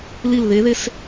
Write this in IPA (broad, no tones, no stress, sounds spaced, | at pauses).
l i l ð e ð e s